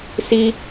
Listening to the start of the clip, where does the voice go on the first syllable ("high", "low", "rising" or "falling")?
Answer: high